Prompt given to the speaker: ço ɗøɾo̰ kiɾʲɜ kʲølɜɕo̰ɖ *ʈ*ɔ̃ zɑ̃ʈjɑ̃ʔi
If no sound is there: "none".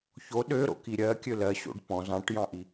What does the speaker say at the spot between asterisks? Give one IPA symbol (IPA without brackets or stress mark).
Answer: p